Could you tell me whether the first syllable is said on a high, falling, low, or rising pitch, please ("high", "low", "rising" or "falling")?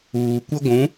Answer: low